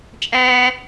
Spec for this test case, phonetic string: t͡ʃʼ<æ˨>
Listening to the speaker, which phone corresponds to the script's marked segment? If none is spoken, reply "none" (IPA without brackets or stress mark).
æː˨